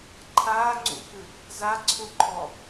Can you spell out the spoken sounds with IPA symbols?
ǃʰaːŋ͡ǀṵkɨ | zaǀʰuǃʰɔ

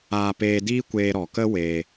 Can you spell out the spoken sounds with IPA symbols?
aː˧peː˧ diː˦kʷeː˧ ɾɔ˨kə˦ we˧

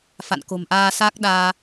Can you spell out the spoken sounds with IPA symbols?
fa̰˧˨n ko̤˨˩mʔaː˧saː˦˥k̚ ɗaː˧

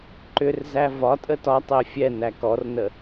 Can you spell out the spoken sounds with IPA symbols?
ǃʏrzæ vɒtʼə tɒtˤɛ fʲɛ nækɔrnə

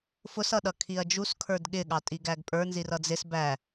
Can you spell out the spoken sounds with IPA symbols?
fʊsʌɗʌ kʰiɐ̯d͡ʒus kʰə˞dɠɪɠɑ tʼiɡæɡpʼə˞ nzirʌd͡zɪs bæ

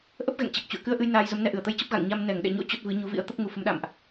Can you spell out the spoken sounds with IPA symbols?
ʔə˦˥p̚ɣɛ̰˧˨ŋ t͡ɕɛ˨˩k̚t͡ɕṵ˧˨ə̯ kɨ˧ə̯ʔɨ˧j naː˧jzə˨˦mnɛ˧ ʔɨ˧˩ə̯t̪ə˧jt͡ɕə˦˥p̚ ɣa̰˧˨ŋɲa˧m nɛ˧˩ŋɗɛ̰˧˨ɲo̰˧˥ t͡ɕo˦˥t̚vɨ˨˦ɲu˨˦ vḭ˧˥ə̯t̪ə˦˥p̚ ŋu˧fə˨˦m ɗa̰˧˨mʔ

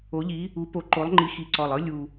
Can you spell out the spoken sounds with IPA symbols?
o˨˦ʎi˨˦ | u˨˦po˨˦ ǃo˨˦lˠŋ͡ǃi˨˦xi˨˩ ǀɔ˨˩lˠɯ˦ lʲu˨˩

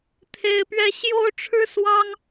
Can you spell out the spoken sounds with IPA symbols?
t̪ʰe˥ɪ̯pɥɛ˥ ɕjo˥ʊ̯ʈ͡ʂʰɻ̩˥ swɑ˥ŋ

